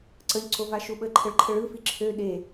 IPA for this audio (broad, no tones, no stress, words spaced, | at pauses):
ǀəʎ ǀovaʃuɓə ǃʰəɭǃʰəɭɯ fiǁʰø ɗe